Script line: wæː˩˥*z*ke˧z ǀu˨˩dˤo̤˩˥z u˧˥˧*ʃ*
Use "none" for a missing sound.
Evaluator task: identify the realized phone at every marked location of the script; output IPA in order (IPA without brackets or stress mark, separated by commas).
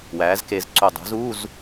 z, z